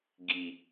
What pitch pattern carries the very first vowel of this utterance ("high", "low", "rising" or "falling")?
low